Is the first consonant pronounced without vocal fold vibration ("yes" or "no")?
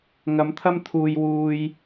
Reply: no